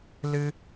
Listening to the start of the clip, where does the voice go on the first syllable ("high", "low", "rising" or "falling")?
high